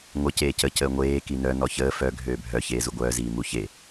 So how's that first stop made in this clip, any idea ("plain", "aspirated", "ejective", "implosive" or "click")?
plain